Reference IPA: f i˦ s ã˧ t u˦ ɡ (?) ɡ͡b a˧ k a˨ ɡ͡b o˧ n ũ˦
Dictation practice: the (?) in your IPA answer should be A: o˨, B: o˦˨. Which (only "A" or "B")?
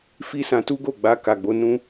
B